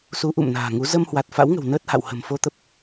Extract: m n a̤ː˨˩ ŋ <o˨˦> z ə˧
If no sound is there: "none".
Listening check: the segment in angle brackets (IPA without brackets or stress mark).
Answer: u˨˦